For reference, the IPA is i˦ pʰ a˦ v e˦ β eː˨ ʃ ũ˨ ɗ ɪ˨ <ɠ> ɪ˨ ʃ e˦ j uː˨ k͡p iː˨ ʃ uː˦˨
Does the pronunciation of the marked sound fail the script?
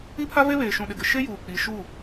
yes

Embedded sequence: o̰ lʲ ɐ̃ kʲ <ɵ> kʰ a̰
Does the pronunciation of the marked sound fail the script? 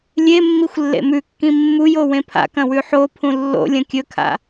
no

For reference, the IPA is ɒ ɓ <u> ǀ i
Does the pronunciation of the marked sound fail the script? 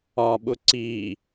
yes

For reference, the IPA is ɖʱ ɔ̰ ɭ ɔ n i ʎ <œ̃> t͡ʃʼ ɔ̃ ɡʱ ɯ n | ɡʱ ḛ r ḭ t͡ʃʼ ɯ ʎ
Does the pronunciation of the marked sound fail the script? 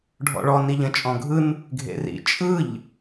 yes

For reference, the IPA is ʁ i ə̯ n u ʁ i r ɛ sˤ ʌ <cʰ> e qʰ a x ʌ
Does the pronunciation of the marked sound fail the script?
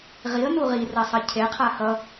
no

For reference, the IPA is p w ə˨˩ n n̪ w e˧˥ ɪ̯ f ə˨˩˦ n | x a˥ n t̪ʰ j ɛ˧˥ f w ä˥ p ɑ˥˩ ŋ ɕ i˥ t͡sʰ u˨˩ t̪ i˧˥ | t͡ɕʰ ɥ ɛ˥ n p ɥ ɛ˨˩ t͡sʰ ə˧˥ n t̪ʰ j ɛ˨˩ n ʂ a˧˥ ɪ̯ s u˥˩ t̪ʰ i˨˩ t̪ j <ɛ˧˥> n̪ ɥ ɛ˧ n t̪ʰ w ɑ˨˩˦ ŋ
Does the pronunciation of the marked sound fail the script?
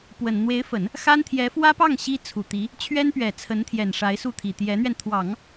no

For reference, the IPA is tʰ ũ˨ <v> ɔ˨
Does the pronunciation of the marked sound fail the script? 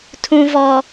no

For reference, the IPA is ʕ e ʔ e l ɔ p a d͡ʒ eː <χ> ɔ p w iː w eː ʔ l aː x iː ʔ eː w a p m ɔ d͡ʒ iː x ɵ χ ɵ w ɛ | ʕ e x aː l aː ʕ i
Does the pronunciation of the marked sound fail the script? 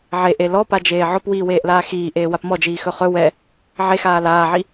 yes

